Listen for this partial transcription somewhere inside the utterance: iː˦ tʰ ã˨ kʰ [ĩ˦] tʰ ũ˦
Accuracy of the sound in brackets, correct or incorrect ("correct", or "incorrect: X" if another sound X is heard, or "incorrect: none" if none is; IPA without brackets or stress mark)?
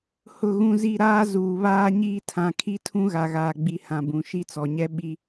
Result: incorrect: i˦